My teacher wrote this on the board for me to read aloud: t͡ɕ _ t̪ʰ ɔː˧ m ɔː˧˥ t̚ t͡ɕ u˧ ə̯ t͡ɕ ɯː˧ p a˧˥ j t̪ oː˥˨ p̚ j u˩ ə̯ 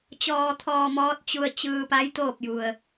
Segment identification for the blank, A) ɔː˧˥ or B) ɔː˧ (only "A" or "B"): B